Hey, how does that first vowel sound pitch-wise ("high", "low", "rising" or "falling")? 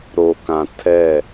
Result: low